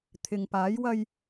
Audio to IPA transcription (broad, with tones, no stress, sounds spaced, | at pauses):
t̪ʰ ɪ˨ ŋ p aː˨˧ j w ɐ˧ j